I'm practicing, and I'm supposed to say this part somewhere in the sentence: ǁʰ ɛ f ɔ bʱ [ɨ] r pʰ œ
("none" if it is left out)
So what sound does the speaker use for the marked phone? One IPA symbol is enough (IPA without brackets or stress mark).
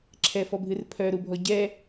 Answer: ɨ